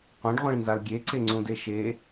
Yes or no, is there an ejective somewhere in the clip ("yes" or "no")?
no